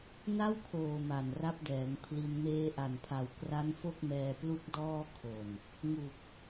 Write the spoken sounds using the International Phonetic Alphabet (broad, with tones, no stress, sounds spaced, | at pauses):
n a˥˩ w kʰ oː˨˩ m a˨˩ n r a˦˥ p̚ d ɛː˩˦ ŋ pʰ l i˧ n m eː˧ ʔ a˨˩ n pʰ a˨˩ w k r a˦˥ n f o˥˩ k̚ m ɛː˧ p l u˥˩ k̚ d ɔː˥˩ kʰ o˨˩ n | ŋ u˨˩ k̚